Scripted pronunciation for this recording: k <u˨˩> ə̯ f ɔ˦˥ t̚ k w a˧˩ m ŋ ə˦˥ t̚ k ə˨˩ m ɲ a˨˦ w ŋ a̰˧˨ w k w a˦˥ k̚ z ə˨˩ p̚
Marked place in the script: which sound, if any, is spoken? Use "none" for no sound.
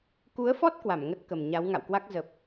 u˨˦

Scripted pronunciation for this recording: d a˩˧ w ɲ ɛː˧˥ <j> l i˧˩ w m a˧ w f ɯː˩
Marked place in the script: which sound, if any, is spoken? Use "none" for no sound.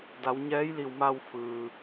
j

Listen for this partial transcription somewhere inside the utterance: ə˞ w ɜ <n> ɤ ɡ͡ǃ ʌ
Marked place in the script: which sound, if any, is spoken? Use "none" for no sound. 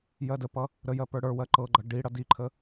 ǃ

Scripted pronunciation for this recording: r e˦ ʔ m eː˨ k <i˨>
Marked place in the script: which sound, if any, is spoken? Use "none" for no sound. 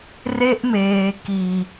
i˨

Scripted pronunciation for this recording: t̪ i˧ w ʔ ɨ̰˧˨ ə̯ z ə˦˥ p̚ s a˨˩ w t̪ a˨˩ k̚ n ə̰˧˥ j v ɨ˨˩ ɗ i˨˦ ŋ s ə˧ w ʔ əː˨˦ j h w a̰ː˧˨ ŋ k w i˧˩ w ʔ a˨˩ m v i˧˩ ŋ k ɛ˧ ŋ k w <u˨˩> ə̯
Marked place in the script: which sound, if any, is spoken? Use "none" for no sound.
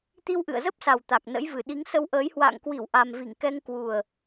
u˨˩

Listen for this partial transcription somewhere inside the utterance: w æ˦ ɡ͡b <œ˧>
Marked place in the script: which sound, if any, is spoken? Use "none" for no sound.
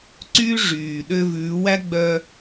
œ˧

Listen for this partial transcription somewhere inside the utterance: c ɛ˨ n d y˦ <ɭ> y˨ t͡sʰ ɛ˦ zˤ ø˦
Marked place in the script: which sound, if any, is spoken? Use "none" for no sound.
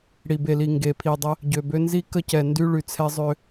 ɭ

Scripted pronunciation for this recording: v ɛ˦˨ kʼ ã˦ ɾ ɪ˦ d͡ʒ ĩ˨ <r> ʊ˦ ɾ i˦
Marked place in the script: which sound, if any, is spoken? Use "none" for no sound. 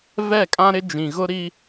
ɣ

